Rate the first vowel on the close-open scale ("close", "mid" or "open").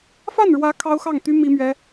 open